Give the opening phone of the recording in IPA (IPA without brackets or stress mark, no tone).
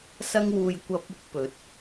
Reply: s